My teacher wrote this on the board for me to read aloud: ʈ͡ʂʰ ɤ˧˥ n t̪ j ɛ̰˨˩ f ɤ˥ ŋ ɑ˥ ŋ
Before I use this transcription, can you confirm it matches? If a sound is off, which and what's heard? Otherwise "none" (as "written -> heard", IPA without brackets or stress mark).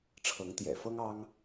n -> ŋ